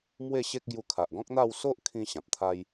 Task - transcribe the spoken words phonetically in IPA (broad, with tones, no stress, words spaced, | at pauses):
mwe˥˧ɕe˦k̚ ɡju˧kʰa˨ʔɡɔ̃˦k̚n̪a˥˧w so˦ʔkʰĩ˧ ɕã˨p̚t̪ʰa˦j